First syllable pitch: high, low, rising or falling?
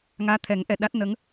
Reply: rising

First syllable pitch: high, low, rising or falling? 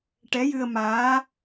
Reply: rising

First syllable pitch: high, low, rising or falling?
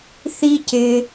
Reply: high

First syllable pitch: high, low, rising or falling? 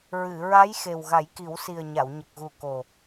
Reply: low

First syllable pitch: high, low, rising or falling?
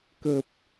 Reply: low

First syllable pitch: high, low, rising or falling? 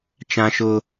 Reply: high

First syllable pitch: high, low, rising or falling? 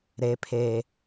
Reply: low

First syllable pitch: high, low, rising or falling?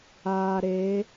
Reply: low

